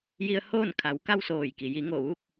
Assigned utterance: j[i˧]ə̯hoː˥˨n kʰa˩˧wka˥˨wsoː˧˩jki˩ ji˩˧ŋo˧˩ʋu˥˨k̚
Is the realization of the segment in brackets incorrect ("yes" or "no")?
no